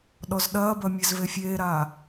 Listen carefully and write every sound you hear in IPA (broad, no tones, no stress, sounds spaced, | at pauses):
ɗ ɔ z ɗ ɐː b ɐ mʲ e z v e fʲ eː ɾ aː